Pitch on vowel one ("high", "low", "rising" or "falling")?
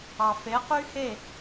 low